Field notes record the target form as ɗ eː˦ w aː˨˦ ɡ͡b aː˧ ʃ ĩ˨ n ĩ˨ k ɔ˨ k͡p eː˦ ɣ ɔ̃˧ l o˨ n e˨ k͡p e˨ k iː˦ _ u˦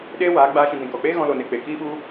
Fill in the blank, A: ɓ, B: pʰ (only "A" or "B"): A